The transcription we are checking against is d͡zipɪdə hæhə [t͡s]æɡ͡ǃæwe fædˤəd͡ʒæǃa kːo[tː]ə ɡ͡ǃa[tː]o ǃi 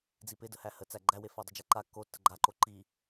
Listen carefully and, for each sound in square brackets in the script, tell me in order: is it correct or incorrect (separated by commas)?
correct, correct, incorrect